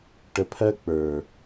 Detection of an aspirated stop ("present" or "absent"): present